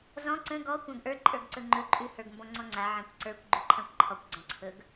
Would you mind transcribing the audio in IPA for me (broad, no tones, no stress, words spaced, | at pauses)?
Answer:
zɔ̃ ǀə̃ ɡɔ kʷãɡʔə˞ ǃʼə˞ɡǀɵŋ͡ǃɵ ǃʼʉ hə˞ɡmbɔ̃ŋ͡ǀɔ̃ŋ͡ǀa ʕãkʷǀə˞kʷ ɡ͡ǃʉǃʰãkʷǃʰɔkʷ ɡ͡ǀãǀʰɵɡ